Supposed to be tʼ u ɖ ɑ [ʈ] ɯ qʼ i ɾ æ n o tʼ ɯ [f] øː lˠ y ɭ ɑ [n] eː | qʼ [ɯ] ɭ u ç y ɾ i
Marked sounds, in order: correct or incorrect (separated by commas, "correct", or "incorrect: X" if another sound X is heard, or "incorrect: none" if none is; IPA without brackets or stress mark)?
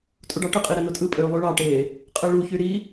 correct, incorrect: pʼ, incorrect: ʈ, correct